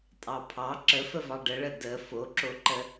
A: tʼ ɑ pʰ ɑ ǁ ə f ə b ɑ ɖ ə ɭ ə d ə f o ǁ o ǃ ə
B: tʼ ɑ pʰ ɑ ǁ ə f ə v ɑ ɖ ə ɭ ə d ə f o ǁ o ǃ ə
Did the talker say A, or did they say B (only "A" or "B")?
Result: B